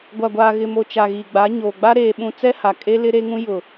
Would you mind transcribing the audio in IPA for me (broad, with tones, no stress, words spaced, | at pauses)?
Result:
ɡʷa˨ɡʷaː˨ɣɪ˨mo˨ t͡ʃa˨ɣiː˨ɡ͡ba˨˦ ɲoː˨ɡ͡ba˦ ɾeː˨ɓũ˨ t͡sɛ˦ha˨kʼe˦ lɪ˦ ɾe˦ŋũ˦ jʊ˨